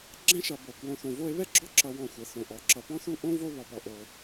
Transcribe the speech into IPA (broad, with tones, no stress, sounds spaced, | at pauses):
ɡ͡ǁ ɛ̃˥ ʃ ʌ˨ b o˩ k w õ˨ θ õ˨ v o˦ e̯ β ɛ˥ ɡ͡ǁ ɔ˦ ǁ ʌ˨ w ɔ̃˨ xʷ ɛ˩ θ õ˩ ʔ ɔ˩ ǁ ʌ˨ p ɔ̃˥ θ u˥ ʔ õ˥ v o˦ β ɔ˩ p ɔ˩ ʔ o˩